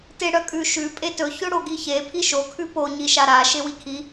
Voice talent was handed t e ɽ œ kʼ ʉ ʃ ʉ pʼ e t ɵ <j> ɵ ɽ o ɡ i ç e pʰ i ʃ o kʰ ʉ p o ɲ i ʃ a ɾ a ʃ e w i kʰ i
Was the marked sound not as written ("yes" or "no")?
yes